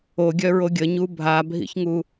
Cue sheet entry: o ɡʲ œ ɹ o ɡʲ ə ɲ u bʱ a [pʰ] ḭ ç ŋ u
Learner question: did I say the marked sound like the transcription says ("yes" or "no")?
no